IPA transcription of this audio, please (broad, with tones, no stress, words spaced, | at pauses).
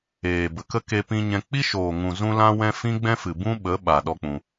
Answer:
eː˨ bə˨kə˦ ke˧pĩ˧ɲɛ̃˧ k͡pi˦ʃoː˨ŋũ˨ zũ˧lã˧wɛ̃˧ fĩ˦ɡ͡bɛ̃˦fɨ˨bũ˦ ɓə˨˦ɓa˨ ɗɔ˦k͡pũ˧